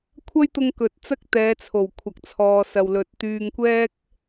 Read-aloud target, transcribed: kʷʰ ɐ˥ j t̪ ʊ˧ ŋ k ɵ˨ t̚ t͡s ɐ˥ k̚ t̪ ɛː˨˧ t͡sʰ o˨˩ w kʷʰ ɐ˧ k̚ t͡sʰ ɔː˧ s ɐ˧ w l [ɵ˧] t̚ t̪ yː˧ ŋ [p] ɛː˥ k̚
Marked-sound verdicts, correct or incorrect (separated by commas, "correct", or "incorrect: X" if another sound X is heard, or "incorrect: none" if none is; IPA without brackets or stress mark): correct, incorrect: kʷ